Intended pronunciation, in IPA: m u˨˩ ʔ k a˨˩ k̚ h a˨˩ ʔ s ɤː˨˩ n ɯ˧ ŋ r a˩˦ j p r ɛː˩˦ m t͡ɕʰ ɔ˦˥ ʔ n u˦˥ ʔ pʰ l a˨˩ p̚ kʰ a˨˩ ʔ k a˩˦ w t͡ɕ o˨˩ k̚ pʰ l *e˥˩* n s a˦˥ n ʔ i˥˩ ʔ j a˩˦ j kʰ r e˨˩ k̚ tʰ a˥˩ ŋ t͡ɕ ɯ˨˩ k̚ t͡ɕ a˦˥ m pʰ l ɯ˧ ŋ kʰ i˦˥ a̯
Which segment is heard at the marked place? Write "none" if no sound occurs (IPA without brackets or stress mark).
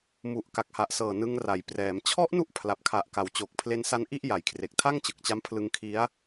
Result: e˧